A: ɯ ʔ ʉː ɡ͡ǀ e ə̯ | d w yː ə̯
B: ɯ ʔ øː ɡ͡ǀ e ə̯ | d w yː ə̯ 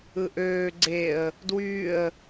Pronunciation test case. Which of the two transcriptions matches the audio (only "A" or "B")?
B